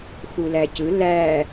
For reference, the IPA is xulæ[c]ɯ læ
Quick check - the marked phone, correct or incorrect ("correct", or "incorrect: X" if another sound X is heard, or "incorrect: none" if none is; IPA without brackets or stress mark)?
correct